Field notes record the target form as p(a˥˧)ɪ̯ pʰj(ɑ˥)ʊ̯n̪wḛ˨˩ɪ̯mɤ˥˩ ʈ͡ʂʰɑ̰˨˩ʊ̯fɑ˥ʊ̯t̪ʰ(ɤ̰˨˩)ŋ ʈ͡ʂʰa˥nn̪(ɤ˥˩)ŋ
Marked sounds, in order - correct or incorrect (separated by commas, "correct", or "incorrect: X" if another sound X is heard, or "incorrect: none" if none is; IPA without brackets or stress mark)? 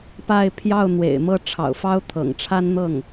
correct, incorrect: ɑ˥˩, correct, correct